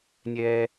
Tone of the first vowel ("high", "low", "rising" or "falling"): high